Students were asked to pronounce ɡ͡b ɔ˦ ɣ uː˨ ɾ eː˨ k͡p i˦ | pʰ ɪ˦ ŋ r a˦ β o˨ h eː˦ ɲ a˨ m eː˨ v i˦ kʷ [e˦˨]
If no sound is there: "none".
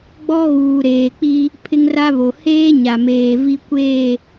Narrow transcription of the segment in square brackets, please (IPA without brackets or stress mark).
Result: e˦˨